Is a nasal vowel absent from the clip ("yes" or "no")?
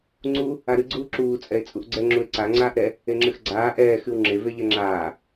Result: yes